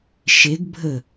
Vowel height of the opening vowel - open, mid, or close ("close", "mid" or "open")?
mid